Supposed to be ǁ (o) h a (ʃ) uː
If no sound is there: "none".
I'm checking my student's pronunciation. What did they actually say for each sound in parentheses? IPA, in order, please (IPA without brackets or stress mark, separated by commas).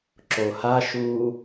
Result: o, ʃ